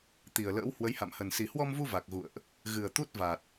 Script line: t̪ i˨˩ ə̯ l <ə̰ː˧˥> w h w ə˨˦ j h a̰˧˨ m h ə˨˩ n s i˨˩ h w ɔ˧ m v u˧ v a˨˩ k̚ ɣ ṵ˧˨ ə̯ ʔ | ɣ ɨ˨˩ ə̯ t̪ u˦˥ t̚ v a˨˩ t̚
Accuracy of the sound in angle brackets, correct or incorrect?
correct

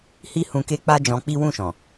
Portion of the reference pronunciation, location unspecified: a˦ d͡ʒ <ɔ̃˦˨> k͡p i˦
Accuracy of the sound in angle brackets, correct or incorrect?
incorrect: ɔ̃˧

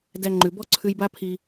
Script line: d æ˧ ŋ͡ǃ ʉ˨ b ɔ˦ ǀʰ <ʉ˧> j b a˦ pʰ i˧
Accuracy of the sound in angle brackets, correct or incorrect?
correct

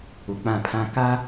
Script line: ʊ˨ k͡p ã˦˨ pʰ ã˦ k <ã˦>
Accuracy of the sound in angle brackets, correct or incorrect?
incorrect: a˦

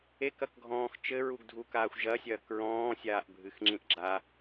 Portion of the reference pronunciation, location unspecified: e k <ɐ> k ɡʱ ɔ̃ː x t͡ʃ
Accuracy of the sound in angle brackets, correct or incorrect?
correct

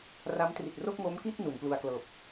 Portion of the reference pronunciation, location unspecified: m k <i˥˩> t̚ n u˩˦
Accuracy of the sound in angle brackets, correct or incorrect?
correct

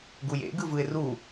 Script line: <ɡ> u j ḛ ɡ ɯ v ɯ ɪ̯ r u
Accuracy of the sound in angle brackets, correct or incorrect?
correct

